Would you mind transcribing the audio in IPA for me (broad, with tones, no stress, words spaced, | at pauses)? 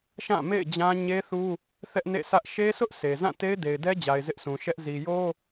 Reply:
ʃã˦˨ mḛ˦˨ɪ̯d͡ʑã˦ ɲe˦θu˦ | θɛ˦ʔnḛ˦˨sʰä˦ʔ ʃe˦sʊ˦ʔ se˨ zã˦˨te˦ɪ̯ de˨ɪ̯dɛ˦d͡ʑa˨ɪ̯ zɪ˦ʔsʰũ˨ʃɛ˦ʔ zi˨jo˦